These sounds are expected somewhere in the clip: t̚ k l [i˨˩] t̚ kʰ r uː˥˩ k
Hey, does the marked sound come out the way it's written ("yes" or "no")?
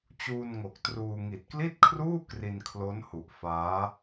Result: no